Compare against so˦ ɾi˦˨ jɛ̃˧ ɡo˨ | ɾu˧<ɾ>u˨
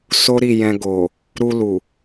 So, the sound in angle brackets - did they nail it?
no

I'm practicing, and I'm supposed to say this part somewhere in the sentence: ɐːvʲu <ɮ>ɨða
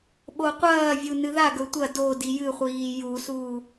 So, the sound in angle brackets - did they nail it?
no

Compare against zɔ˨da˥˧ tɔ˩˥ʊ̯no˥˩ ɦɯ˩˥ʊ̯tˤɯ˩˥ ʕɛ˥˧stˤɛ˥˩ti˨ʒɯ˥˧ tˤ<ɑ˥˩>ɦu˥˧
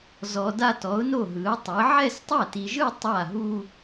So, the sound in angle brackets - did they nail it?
no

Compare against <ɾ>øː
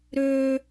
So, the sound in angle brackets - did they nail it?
yes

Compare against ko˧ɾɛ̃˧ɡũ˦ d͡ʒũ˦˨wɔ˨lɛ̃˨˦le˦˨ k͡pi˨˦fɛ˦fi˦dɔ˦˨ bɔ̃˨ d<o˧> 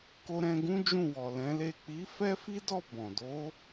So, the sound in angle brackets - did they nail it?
no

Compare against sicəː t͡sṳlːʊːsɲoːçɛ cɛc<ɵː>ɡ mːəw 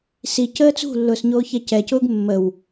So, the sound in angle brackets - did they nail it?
no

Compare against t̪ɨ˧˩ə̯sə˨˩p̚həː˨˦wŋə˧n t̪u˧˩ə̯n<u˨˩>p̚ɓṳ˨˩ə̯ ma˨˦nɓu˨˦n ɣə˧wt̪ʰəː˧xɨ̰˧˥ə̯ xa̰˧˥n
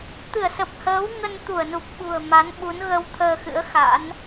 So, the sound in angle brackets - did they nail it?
yes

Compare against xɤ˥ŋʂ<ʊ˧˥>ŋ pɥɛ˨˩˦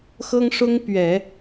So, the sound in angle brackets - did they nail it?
no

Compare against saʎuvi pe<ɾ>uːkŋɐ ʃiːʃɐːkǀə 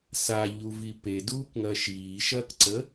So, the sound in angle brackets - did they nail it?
no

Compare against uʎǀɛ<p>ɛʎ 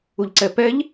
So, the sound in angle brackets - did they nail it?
yes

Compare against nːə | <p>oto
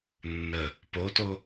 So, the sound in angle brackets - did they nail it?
yes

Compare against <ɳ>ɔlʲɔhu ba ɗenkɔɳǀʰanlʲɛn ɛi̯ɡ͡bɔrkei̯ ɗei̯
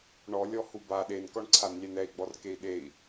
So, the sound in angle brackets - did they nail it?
yes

